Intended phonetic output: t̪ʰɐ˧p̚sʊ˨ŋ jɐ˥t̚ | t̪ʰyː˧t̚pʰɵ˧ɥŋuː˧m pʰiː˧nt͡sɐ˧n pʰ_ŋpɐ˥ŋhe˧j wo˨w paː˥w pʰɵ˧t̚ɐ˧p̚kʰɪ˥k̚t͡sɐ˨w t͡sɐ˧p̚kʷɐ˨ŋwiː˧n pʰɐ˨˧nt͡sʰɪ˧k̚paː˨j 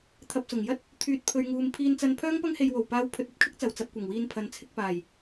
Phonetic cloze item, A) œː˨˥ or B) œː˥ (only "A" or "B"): B